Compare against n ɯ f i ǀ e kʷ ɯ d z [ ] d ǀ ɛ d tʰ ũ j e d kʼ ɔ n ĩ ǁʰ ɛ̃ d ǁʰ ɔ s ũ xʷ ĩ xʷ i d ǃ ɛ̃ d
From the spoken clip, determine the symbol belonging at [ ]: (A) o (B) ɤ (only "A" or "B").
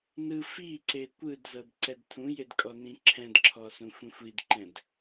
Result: B